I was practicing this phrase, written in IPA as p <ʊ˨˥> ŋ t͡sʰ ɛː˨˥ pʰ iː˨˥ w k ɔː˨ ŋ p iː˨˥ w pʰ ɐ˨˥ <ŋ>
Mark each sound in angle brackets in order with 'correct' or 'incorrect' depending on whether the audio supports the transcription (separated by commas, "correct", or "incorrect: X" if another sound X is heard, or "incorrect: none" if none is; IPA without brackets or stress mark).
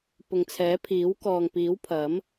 incorrect: ʊ˨, incorrect: m